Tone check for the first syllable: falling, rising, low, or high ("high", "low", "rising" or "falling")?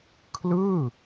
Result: falling